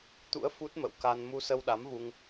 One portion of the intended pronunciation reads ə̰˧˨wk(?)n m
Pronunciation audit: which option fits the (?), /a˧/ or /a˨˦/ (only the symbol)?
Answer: a˧